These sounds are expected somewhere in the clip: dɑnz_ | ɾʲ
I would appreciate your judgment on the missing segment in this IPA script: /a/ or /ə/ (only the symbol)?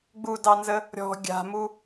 ə